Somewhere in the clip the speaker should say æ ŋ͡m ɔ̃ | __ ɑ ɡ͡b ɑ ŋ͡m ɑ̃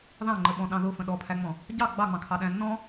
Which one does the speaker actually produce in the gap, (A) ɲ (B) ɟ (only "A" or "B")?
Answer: B